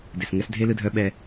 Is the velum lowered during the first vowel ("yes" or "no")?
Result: no